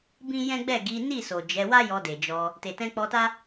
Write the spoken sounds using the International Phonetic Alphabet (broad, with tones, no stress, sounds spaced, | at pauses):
b ĩ˦ j ɛ̃˦ ɡ͡b ɛ˦˨ ɡ i˨˦ n i˦˨ s o˨ d͡ʒ ɛ˨˦ w a˦ j ɔ˧ d e˨ d͡ʒ ɔ˧ | t e˨ t ɛ̃˧ k͡p ɔ˧ t a˦